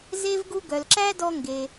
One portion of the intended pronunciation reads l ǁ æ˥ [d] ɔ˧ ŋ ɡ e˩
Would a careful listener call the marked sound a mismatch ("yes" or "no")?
no